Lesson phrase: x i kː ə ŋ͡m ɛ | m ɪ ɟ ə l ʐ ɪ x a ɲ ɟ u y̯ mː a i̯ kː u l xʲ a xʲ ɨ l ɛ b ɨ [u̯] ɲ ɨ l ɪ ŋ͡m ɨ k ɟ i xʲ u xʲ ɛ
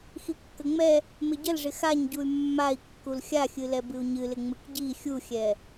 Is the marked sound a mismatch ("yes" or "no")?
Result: no